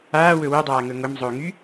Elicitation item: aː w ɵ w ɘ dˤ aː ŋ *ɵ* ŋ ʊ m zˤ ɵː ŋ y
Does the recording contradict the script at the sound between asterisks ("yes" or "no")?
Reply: no